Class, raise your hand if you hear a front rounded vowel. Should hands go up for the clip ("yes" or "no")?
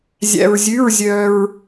yes